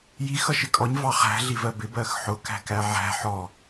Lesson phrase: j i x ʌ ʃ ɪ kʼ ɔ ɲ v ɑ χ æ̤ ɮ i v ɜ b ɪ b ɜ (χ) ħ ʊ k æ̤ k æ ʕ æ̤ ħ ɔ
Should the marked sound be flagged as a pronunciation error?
yes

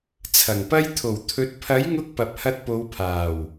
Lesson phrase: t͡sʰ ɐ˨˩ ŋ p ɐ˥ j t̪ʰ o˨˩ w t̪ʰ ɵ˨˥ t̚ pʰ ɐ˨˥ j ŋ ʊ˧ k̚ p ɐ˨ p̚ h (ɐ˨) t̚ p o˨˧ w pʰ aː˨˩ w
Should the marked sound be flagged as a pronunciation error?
yes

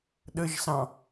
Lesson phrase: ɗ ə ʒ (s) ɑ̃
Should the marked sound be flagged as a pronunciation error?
no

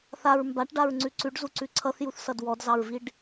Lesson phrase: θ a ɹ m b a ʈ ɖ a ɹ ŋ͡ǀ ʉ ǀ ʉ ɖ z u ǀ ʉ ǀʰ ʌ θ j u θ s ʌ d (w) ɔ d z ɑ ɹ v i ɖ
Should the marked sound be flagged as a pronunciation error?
no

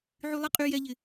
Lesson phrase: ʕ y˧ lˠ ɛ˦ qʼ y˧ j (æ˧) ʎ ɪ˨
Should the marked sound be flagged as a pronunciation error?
yes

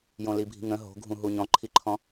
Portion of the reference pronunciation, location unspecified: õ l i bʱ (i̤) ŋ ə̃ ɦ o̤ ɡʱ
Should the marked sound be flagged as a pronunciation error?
no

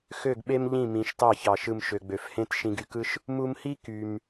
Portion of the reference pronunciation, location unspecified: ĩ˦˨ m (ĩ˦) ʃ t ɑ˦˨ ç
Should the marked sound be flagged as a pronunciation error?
yes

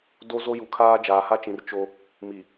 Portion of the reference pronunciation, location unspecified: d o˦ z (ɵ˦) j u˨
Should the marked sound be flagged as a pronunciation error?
yes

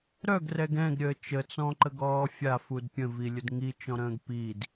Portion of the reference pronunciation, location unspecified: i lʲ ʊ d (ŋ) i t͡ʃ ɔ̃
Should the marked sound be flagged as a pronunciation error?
no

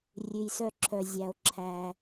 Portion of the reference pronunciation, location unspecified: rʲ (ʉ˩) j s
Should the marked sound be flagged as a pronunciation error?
no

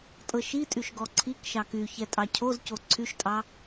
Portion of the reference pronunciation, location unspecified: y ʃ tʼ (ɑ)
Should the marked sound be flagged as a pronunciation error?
no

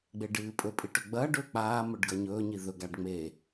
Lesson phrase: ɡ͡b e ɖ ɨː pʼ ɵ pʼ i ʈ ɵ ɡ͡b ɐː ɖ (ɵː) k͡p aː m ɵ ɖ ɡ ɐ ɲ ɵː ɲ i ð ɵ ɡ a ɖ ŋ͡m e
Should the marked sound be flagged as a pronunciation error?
no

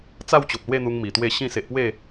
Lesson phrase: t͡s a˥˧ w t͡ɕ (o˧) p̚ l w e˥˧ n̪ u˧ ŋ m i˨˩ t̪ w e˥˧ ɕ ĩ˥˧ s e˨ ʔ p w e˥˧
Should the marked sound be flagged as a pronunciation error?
yes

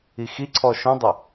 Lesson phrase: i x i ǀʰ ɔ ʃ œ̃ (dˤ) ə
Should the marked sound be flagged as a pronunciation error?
no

